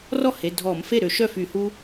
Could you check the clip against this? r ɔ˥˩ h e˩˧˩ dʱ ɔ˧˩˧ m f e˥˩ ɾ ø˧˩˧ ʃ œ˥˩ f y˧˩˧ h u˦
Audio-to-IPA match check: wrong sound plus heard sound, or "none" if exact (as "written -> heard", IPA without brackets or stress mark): none